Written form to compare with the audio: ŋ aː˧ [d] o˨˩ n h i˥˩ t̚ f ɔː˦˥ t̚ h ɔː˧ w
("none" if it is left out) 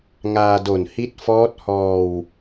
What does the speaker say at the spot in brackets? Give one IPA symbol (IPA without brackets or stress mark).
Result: d